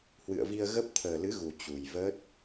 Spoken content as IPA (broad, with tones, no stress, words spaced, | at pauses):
hwɨ̰˧˨ə̯vi˧ə̯ɣə˦˥p̚ t̪ʰəː˨˩lɨ˨˦ɣu˨˩ t͡ɕu˨˩jvəː˦˥t̚